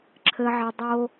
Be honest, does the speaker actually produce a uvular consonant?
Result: no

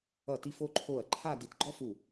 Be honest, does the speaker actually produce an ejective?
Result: no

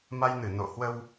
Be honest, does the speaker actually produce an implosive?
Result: no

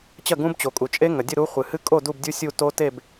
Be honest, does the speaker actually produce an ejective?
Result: yes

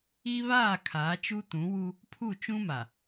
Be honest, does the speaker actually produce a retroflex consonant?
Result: no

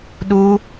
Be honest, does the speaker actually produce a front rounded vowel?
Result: no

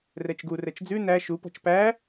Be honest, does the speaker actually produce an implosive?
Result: no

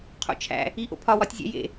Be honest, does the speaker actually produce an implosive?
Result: no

